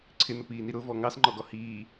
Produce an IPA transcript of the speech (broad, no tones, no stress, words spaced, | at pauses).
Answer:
ǀʰɪnʊpiːni ɾʊvɔ ŋɑsŋ͡ǃɔɡɔ hiː